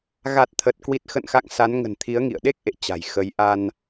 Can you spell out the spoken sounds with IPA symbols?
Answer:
ɣ a˨˩ t̚ t̪ʰ ə˨˩ t̚ k w i˨˩ t̚ x ə̰˧˨ n x a̰˧˨ ŋ s a˨˦ n ŋ ə̤˨˩ n t̪ʰ i˨˦ ə̯ ŋ ḭ˧˨ ə̯ ɗ e˦˥ k̚ ʔ ḛ˧˨ t͡ɕ a̤˨˩ j x ə˨˦ j ʔ a˧ n

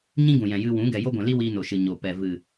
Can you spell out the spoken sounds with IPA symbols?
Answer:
ɲ ĩ˦ ɡ ũ˨ j ɛ̃˨ j ɨ˧ w ũ˨˦ ɡ ɛ˨ j o˦ ɡʷ ɛ̃˨ l i˦ w iː˧ n o˨ ʃ ɨ˨ ɲ o˨ p ɛ˨ v ɨ˨

